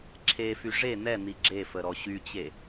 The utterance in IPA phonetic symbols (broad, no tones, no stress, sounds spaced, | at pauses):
ǁʰ e f y ʐ e n̪ ɛ n̪ i ɡ͡ǁ e f ə ɾ ɔ ɕ y t͡ɕ e